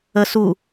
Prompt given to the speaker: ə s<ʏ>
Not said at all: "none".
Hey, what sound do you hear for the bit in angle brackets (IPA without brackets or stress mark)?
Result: u